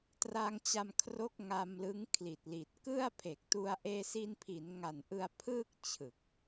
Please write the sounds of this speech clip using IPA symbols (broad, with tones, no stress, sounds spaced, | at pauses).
t r a˧ ŋ t͡ɕ a˧ m kʰ r o˦˥ k̚ ŋ a˧ m l ɯ˦˥ ŋ kʰ l i˨˩ t̚ l i˨˩ t̚ k ɯ˥˩ a̯ pʰ e˨˩ k̚ t u˧ a̯ ʔ eː˧ s i˧ n pʰ i˩˦ n ŋ a˨˩ n ʔ ɯ˧ a̯ pʰ ɯː˥˩ k̚ t͡ɕʰ ɯ˨˩ k̚